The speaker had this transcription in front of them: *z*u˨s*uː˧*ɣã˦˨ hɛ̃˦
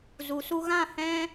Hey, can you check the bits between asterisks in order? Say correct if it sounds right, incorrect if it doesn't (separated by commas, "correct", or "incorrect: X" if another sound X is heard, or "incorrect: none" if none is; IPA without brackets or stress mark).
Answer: correct, incorrect: u˧